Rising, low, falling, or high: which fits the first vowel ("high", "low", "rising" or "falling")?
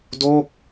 falling